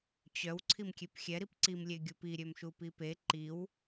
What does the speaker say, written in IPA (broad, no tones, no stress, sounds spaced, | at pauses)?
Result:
t͡ɕ œ w ǀʰ i m kʲ e p xʲ ɛ ɾ i p ǀ i m lʲ e ɡʲ u p i ɾʲ ø m ʃ u p i p e ǃ i w